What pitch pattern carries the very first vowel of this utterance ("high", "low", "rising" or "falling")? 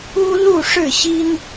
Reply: high